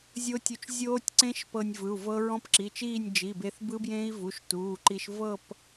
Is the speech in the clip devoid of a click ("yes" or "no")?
no